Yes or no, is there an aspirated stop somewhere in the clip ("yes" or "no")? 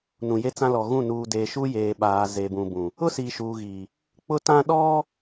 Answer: no